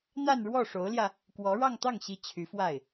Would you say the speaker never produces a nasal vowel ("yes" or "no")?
yes